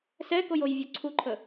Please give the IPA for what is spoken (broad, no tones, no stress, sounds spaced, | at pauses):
s ɛ k o j o j vʲ o ǀʰ u ǃʰ ə